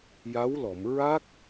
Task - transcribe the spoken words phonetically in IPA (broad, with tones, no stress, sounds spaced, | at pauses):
j a˧˥ w l ɔ˨˩˨ m ɹ a˦˥ k̚